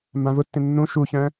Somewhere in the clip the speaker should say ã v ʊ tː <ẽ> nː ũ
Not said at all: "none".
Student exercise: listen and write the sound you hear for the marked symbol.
ẽ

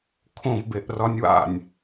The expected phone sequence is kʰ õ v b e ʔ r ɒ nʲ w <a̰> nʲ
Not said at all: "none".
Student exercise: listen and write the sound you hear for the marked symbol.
a̰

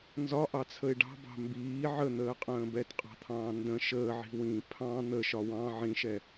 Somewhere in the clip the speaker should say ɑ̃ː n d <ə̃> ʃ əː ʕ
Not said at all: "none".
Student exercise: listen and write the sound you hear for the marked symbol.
ə̃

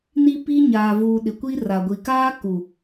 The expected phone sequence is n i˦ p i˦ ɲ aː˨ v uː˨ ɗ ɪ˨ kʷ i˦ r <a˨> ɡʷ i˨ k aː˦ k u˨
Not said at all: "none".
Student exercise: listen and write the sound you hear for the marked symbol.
a˨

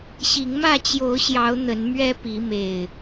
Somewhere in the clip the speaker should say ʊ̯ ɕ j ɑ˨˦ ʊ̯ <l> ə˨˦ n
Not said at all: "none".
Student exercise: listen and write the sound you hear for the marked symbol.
n̪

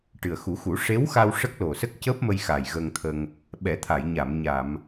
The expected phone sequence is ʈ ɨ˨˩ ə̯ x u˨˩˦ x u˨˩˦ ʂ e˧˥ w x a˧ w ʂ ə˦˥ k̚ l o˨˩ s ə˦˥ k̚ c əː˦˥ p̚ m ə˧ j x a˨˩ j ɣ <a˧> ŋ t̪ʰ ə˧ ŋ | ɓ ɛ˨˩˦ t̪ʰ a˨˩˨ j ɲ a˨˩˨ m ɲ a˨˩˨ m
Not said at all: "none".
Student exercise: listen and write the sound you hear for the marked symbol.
ə˧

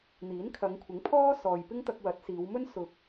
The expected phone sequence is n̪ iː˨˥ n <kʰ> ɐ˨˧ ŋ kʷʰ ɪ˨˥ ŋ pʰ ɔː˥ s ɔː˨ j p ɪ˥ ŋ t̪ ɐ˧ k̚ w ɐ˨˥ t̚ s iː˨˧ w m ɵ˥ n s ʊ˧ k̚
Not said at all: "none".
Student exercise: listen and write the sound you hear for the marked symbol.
kʰ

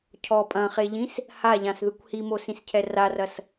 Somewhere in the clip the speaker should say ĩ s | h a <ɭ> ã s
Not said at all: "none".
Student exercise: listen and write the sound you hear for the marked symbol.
ʎ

